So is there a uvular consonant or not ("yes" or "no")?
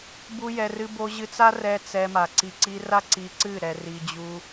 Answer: no